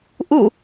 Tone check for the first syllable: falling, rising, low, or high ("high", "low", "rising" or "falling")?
falling